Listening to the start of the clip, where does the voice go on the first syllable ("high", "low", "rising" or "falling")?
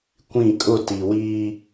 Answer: falling